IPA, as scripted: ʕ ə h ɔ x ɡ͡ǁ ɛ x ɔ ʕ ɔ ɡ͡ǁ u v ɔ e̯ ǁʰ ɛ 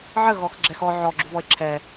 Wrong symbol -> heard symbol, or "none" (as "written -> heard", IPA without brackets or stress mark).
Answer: h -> ɣ